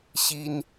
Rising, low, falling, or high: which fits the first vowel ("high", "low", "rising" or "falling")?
high